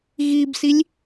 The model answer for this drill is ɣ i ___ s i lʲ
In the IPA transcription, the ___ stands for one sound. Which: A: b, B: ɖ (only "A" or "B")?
A